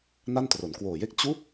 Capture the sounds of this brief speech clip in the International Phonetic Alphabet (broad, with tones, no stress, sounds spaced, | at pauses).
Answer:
n a˥˩ n t r o˩˦ n k w oː˨˩ j e˥˩ k̚ t͡ɕ u˦˥ k̚